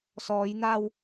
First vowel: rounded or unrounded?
rounded